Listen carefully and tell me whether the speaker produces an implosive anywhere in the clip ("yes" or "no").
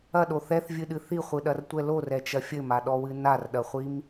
yes